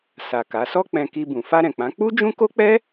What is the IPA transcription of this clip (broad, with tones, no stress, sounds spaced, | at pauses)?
s a˨ k a˨˦ s ɔ˧ k͡p ɛ̃˨ k i˧ b ũ˨ f a˧ ɾ ɛ̃˨ k͡p ã˨˦ k͡p u˦ d͡ʒ ũ˦ k o˦ k͡p ɛ˦